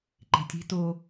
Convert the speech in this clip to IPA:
ǃe̤tʲe̤ to

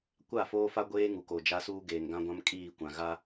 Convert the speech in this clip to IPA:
kʷa˦˨foː˦fa˦ɡʷeː˦ ŋu˨ko˨d͡ʒa˦suː˦ ɡeː˨ŋɡã˦ɡʷã˦m kʼiː˦˨kʷã˨ɣa˦

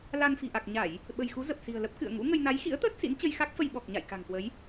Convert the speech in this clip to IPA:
la˧nfi̤˨˩ ʔa˨˩k̚ɲa˧˩˨j | ɓə̤˨˩jxu˨˦ zə˨˩p̚si̤˨˩ə̯lə˦˥p̚ kɨ̰˧˨ə̯ ŋṵ˧˥ŋə˧j na˨˦jxḭ˧˥ə̯t̪əː˦˥t̚ sḭ˧˥nt͡ɕə˧jxa˦˥k̚fə˧j ɓɔ˨˩k̚ɲa̰˧˨j ka̤˨˩ŋkwə˨˦j

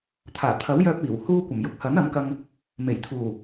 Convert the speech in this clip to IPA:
t̪ʰaː˨˩t̪ʰɐ˨˥wjœː˧p̚ iː˨˩w huː˧kʷɐ˨˩mjʊ˨k̚ hɐ˨˥n ɐ˨˥mkɐ˧ŋ | me˨˩jt̪ʰuː˨˩

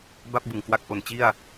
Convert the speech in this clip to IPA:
ba˥˩p̚bɯ˨˩ŋ kwa˥˩k̚ ʔo˨˩n t͡ɕi˥˩a̯

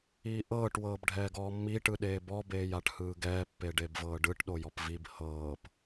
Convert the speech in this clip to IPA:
iːʔɤːʈ wɤːbɖʱɛːɡɔːmːi ʈɯɗeːbɔ beːjaʈhɯːɡɛː pːeɖebvɤːɖɯʈ ɗojɔpvib hɤːp

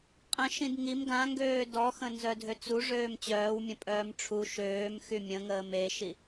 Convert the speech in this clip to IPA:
qʼə̃ ʃĩdŋim ɡãŋɡøː dɔxə̃ nzœdʱøt͡su ʐøːmt͡ɕœːwmʲə̃ pʼœːmʈ͡ʂʰu ʃøːm xymʲə̃ŋəːm eʃi

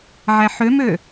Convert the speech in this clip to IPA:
ʕæħømø

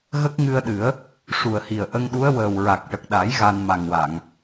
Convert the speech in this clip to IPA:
ɣə˦˥k̚ŋɨ˧ə̯ɗɨ˨˩˦ə̯ | ʂu˨˩ə̯hi˨˩ə̯ ʔə˧ŋɗu˧˥ə̯wəː˨˩w ɹa˨˩k̚ʈə˨˩k̚ɗa˨˩˦j ɣa˧nma˨˩ŋwa˨˩˨ŋ

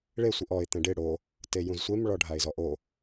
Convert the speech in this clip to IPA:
ɭe sʷiʔɔɪ̯ t̪ɛ̃ɖɪ ɽo | tejũzsʷem ɭɔɖʱaɪ̯zɔʔo

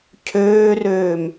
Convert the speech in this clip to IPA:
cʰøːrøːm

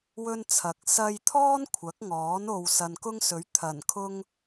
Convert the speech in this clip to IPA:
wɵ˥n t͡sʰɐ˨k̚ sɐ˧jt̪ʰɔː˥n kʷʰɐ˨˥k̚ŋɔː˨˥n o˧w sɐ˨nkʊ˥ŋsɵ˨˥ɥ t̪ʰɐ˨˩nkʰʊ˥ŋ

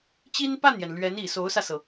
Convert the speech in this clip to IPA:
t͡ɕi˥npa˥˩njɛ˩n lɥɛ˧˥ni˨˩ so˧˥ʊ̯sä˧sɤ˩

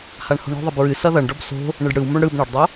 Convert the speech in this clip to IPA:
haɳho̤ɳɔ̤ðˤʌb ɹɨ sʌðʌɳɖɔb so̤ | ɳɨɖɽɯwmoɳ ɽɯb ɳʌɖdˤo

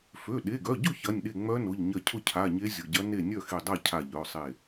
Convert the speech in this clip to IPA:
fø˩˧˩ɗe˩˧˩ɡœ˩˧˩ɟʊ˥˩ çɐ˩˧˩nʲɗe˧˩ ŋ͡mœ˧˥nʊ˩˧˩ʎ ɲɐ˧˩cʰʊ˥˩cʰa˩˧˩ ɲe˧˥zʲʊ˩˧˩ɟɐ˧˥ ne˥˩ nʲœ˥˩xe˧˩dˤa˥˩ cʰa˧˩ʎœ˩˧˩sˤe˧˩

